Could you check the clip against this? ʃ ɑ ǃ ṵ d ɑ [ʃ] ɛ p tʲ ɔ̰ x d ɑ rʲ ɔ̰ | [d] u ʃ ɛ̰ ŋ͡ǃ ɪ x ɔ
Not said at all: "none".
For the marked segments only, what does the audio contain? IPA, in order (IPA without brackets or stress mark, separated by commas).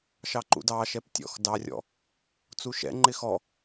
ʃ, t͡s